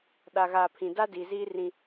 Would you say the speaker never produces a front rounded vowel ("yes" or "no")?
yes